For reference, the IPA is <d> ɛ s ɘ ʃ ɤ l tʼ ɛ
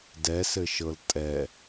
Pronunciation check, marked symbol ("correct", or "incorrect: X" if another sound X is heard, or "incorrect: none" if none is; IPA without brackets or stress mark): correct